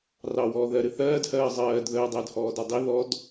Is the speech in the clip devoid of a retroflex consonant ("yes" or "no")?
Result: yes